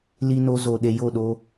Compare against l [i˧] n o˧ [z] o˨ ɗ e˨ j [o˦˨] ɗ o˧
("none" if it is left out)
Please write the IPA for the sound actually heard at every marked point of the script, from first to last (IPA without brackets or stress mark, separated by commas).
i˧, z, o˦˨